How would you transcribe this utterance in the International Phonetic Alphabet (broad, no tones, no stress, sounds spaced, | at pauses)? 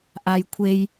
ʔ a j kʷʰ e j